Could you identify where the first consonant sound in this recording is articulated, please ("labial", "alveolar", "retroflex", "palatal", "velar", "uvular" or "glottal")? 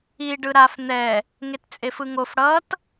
retroflex